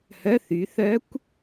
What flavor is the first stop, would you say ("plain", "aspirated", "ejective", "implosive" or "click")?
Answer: plain